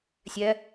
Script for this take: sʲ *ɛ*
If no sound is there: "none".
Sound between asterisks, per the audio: ɛ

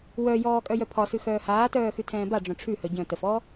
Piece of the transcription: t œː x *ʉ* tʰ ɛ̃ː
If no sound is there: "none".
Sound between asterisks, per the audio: ʉ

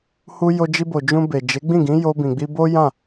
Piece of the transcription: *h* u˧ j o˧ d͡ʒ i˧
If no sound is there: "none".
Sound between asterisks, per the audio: h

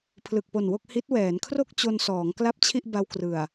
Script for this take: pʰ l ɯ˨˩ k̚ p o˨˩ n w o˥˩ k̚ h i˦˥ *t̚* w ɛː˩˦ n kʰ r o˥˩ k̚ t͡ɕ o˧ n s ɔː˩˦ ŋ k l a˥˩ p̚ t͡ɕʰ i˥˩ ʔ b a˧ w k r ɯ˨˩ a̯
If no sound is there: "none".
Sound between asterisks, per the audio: t̚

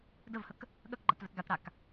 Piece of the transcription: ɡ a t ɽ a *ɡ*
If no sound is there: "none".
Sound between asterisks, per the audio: k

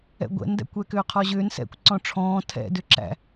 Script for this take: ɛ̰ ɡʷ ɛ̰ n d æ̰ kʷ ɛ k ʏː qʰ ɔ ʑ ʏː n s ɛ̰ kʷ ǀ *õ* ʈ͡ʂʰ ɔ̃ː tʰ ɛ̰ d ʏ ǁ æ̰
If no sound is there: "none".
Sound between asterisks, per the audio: ɔ̃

